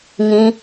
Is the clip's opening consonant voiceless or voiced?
voiced